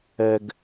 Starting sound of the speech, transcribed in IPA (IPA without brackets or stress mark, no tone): ɛ